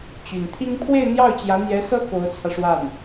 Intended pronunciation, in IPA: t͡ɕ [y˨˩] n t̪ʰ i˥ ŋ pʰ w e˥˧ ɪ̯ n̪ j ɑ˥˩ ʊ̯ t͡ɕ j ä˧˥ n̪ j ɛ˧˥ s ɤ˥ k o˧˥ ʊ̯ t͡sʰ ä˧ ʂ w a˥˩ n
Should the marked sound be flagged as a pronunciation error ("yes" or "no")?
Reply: no